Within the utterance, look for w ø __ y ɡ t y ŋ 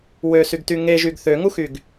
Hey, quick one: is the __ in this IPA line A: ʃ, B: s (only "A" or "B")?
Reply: B